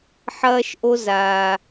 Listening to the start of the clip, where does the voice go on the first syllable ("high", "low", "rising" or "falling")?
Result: high